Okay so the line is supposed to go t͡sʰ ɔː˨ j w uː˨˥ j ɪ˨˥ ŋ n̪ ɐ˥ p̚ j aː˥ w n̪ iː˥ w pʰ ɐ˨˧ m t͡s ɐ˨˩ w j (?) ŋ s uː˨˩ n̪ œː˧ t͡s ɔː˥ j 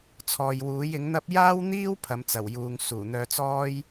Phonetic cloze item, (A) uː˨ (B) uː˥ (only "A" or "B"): A